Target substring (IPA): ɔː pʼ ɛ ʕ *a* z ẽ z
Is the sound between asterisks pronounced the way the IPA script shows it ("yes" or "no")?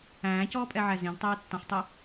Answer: no